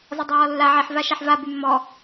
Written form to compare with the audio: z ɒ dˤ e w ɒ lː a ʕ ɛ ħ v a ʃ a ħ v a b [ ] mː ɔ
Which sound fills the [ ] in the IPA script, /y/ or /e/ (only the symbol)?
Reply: y